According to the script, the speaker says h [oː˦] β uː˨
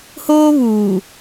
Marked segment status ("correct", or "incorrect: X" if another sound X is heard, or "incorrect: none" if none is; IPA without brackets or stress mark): correct